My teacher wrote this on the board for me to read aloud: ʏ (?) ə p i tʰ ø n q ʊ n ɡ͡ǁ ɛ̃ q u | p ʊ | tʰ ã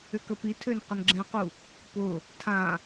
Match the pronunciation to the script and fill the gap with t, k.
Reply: k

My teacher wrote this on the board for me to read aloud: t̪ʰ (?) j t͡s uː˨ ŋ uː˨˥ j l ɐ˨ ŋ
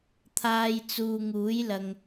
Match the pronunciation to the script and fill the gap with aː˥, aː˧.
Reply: aː˧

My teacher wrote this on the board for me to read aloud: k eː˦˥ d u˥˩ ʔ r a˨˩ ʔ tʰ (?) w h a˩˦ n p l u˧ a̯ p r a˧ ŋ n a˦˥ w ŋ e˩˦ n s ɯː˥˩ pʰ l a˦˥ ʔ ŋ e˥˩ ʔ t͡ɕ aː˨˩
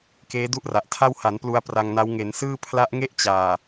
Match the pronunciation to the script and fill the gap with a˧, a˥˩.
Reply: a˥˩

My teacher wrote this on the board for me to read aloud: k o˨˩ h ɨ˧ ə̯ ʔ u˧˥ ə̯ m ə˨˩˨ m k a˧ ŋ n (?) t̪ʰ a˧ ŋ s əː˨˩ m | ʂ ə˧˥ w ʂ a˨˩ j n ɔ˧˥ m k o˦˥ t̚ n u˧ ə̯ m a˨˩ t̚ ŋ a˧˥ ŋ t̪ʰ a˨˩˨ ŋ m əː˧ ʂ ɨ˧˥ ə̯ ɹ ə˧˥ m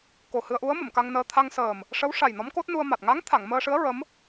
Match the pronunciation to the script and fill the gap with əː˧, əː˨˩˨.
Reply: əː˧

